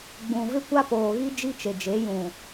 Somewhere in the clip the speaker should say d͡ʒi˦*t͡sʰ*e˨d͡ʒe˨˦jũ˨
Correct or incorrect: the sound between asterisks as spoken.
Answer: incorrect: t͡ʃ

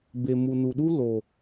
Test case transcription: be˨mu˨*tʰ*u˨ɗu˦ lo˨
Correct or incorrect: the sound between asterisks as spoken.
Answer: incorrect: n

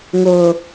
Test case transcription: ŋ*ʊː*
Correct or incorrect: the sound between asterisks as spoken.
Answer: correct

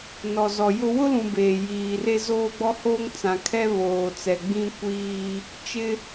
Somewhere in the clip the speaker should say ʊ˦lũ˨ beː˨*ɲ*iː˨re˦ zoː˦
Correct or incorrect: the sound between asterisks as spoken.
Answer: incorrect: j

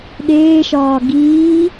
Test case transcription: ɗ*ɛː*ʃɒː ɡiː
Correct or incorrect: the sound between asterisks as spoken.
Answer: incorrect: eː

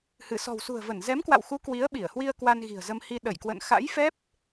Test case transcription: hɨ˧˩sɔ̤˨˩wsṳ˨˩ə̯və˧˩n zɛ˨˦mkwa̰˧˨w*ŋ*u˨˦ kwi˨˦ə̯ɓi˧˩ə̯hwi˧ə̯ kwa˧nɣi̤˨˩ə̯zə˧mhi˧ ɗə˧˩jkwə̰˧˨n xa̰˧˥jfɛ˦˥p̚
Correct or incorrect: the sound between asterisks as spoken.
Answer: incorrect: x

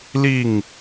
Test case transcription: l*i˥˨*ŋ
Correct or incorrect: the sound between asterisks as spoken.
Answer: correct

